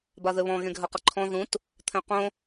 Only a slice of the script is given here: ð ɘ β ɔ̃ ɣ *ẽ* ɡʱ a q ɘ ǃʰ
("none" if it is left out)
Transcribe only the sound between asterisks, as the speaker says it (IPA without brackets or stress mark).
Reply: ẽ